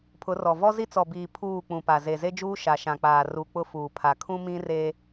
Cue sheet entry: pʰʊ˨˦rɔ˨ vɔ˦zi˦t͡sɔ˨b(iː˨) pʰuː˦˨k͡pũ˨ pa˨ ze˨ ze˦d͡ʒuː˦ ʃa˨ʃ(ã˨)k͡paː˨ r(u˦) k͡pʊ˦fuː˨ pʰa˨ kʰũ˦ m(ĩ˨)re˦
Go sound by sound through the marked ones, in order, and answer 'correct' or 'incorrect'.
correct, correct, incorrect, incorrect

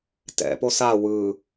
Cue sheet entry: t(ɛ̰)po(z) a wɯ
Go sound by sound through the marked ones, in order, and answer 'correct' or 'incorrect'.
correct, incorrect

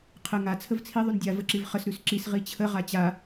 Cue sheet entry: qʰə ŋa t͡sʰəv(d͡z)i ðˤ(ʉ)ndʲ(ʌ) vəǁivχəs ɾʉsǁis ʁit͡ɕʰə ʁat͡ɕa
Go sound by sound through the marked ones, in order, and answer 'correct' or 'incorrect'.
incorrect, correct, incorrect

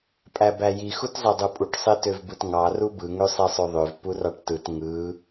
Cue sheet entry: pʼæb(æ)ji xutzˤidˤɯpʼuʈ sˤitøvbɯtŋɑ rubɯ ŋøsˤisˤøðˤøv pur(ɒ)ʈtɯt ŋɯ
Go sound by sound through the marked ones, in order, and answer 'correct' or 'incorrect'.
correct, incorrect

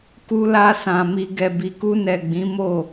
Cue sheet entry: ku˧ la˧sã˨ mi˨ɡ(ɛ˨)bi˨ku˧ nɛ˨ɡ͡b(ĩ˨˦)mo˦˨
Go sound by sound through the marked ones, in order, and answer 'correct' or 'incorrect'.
correct, correct

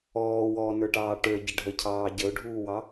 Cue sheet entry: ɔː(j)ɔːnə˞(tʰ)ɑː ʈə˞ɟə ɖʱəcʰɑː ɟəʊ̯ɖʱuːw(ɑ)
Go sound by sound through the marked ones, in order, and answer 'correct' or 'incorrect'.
incorrect, incorrect, correct

